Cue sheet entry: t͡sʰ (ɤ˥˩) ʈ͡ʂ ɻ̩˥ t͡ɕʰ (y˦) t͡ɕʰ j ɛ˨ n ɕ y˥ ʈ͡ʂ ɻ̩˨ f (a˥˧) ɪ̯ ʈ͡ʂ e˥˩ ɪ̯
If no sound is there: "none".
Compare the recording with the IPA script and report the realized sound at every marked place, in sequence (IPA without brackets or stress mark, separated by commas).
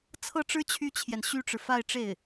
ɤ˥˩, y˥, a˥˧